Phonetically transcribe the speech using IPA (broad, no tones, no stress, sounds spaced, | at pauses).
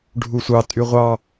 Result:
ɖʱ u sʷ ɑ tʼ y ʁʷ ɑ